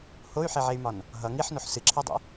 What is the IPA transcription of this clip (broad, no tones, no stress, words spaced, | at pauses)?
hoy̯ħeʕey̯mɒn | ɦʌ ŋiħnoħ sɨǁʰedˤḭ